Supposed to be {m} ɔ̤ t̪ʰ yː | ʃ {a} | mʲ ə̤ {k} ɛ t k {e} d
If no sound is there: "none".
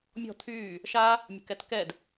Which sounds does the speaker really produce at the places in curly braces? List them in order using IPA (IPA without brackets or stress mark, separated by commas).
mʲ, a, k, ɛ